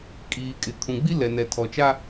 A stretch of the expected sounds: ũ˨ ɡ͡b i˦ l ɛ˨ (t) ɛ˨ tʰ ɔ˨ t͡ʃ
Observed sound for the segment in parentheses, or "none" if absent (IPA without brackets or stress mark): n